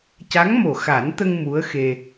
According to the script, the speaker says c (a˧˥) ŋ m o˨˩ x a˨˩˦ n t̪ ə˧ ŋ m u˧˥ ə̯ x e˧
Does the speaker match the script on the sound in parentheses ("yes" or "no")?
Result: yes